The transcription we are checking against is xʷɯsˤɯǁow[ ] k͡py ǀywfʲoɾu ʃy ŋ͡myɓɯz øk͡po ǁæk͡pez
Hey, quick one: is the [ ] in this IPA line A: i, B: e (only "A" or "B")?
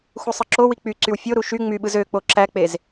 A